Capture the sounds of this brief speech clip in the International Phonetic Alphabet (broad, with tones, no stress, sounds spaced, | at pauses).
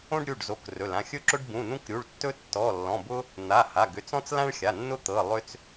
õ˦ ɖ ɾʲ u˩˧˩ ɖ z o˩˧˩ k r ɵ˩˧˩ l ã˩˧˩ xʲ ɵ˦ ǁ ʊ˦ ɖ b ũ˩˧˩ n ũ˦ k ɾʲ u˩˧˩ ɭ tː ɵ˦ tː ɔ˩˧˩ lː ɔ̃˩˧˩ b ʊ˦ | n̪ a˩˧˩ h a˩˧˩ ɡ ʏ˩˧˩ t͡s ɔ̃˦ t͡s l ã˦ ɭ xʲ a˩˧˩ nː ʊ˦ t̪ ɤ˩˧˩ lˠ ʏ˦ t͡s